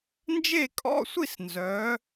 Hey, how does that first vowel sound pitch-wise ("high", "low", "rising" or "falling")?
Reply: falling